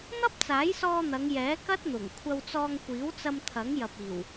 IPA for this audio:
n̪ ɐ˥ p̚ t͡s aː˨˥ j s ɔː˧ n̪ ɐ˨˧ ŋ j ɛː˨˥ k ɐ˥ t̚ n̪ ʊ˨˩ ŋ kʷʰ ɐ˧ w t͡s ɔː˧ ŋ kʷ iː˨˥ w t͡s ɐ˧ m t̪ʰ ɐ˨˥ ŋ j ɐ˨ p̚ iː˨˩ w

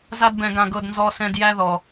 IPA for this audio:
z a˧ d b ɛ̃˨ ɡ ã˨ ɡ ɤ˨ d n z ɔ˨ s ɛ̃˨ d j æ˧ ð ɔ˨

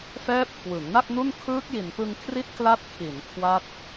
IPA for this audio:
f ɛː˦˥ p̚ kʰ w ɯ˩˦ ŋ n a˥˩ k̚ n u˥˩ n kʰ ɯː˦˥ k̚ j i˨˩ n p ɯ˧ ŋ kʰ r i˥˩ t̚ k l a˦˥ t̚ kʰ i˩˦ n kʰ w a˦˥ t̚

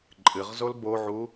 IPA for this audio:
ǃʼ ɨ ʁ z o l b o ʕ u

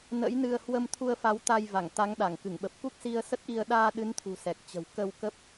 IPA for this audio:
n ə̰˧˥ j n ɨ˧ ə̯ h w ə˧ m t̪ʰ u˧ ə̯ f a˨˦ w t̪ a˧ j v a˧˩ ŋ t̪ a˨˦ ŋ ɗ a˧˩ ŋ k ɨ˧˩ ŋ ɓ ə˨˩ p̚ k u˦˥ k̚ s i˧ ə̯ s ə˦˥ t̚ ʔ i˧ ə̯ ɗ aː˧ ɗ ɨ˨˦ n t̪ʰ ṳ˨˩ s ɛ˨˩ k̚ t͡ɕ ə̤˨˩ w k ə˧ w k ə˦˥ p̚

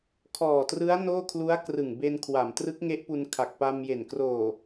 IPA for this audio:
kʰ ɔː˨˩ t r ɯ˦˥ a̯ n oː˥˩ kʰ l u˦˥ a̯ k r ɯ˨˩ ŋ b e˧ n kʰ w a˩˦ m t r ɯ˦˥ k̚ ŋ e˦˥ ʔ p u˧ n kʰ a˨˩ k̚ p a˧ m j e˨˩ n k r oː˨˩

